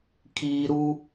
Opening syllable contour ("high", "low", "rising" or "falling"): low